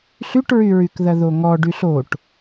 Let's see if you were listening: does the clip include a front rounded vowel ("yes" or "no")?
yes